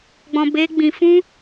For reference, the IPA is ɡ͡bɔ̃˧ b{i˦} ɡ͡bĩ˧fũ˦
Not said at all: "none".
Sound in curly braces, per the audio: e˦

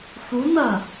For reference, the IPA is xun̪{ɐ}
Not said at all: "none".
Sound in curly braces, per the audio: ɐ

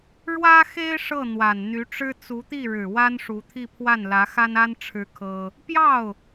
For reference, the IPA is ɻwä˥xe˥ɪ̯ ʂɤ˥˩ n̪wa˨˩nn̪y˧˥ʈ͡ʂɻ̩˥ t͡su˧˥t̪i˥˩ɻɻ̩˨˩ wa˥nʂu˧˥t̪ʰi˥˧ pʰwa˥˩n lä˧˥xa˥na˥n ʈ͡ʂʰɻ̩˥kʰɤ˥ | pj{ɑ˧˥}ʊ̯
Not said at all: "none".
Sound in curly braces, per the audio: ɑ˥˩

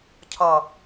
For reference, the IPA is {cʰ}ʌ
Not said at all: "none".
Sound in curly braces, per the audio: cʰ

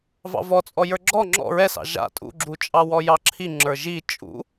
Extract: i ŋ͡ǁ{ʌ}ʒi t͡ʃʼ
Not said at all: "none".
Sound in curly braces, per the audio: ə˞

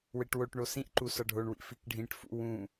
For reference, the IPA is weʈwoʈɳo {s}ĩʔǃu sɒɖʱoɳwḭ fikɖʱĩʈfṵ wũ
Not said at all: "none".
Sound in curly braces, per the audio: s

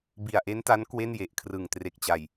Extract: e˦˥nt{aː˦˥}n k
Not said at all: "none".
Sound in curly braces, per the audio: a˦˥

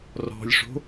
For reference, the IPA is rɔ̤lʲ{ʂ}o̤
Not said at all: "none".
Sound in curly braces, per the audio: ʂ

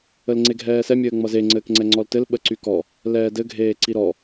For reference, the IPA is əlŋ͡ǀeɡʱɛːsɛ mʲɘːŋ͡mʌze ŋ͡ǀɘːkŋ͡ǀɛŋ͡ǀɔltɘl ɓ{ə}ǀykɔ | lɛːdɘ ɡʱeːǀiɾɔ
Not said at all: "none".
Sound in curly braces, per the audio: ə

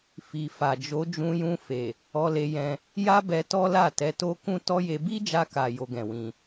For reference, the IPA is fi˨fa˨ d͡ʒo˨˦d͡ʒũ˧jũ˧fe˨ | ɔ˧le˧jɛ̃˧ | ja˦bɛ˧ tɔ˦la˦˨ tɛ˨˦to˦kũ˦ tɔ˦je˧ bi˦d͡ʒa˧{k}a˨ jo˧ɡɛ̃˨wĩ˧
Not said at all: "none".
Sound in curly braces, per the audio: k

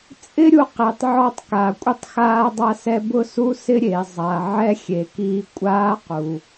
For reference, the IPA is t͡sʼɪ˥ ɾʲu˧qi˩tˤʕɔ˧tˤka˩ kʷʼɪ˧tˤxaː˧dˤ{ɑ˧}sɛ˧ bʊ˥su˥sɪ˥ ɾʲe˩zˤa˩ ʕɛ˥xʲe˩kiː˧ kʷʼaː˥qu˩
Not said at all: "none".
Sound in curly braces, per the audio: a˧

